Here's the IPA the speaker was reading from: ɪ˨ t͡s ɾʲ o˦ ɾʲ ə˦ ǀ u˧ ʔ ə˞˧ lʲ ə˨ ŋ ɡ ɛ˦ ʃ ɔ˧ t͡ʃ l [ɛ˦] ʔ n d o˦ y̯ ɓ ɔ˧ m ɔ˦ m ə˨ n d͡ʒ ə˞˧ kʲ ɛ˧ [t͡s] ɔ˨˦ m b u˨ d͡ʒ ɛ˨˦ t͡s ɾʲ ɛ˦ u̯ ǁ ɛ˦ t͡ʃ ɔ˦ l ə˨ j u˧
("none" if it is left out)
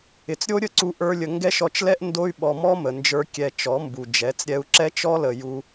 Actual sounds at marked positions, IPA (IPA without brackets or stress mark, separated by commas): ɛ˦, t͡ʃ